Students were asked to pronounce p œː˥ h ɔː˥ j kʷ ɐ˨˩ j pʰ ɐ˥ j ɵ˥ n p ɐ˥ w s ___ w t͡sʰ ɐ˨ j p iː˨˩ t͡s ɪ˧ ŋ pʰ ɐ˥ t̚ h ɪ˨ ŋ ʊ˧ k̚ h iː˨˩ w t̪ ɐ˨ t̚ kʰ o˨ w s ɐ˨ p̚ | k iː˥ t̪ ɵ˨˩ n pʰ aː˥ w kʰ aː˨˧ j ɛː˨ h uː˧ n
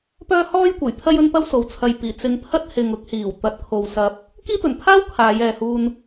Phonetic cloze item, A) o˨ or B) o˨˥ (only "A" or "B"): A